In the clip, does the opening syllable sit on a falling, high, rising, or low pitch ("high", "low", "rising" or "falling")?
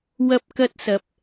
high